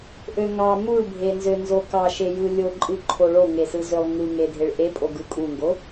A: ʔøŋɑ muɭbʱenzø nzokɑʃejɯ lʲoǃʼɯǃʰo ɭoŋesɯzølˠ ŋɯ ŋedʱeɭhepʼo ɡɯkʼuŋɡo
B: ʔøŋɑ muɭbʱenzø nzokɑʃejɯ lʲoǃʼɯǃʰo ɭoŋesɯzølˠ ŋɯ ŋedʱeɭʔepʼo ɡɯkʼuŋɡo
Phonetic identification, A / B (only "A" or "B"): B